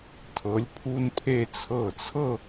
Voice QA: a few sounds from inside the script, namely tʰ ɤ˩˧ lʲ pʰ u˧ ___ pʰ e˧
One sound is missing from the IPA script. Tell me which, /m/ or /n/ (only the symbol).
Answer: n